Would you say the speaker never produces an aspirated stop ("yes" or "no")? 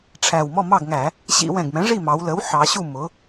no